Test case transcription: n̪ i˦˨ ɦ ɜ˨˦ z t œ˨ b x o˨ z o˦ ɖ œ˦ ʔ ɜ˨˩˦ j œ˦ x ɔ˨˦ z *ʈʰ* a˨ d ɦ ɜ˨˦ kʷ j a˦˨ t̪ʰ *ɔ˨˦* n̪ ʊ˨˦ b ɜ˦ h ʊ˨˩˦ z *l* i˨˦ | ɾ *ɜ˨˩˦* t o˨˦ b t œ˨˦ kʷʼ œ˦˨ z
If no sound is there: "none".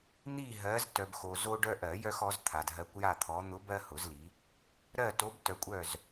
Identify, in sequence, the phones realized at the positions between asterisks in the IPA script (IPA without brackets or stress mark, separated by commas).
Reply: t̪ʰ, ɔ˨˦, l, ɜ˦˨